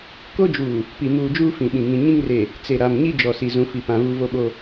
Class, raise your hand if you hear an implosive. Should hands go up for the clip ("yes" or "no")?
yes